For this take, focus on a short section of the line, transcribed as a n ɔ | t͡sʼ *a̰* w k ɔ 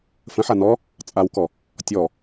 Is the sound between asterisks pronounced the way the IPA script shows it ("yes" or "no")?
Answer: no